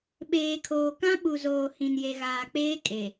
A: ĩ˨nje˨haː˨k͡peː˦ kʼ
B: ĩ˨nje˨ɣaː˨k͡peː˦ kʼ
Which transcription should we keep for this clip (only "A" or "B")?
B